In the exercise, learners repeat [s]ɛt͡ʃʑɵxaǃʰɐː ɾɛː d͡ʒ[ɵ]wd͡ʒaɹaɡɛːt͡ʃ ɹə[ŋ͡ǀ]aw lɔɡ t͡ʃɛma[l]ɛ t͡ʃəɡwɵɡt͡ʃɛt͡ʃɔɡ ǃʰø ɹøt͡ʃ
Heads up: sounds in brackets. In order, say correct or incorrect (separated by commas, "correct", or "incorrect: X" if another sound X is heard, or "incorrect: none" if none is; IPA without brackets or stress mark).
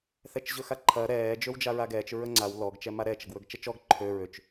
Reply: incorrect: θ, incorrect: ø, correct, incorrect: ɾ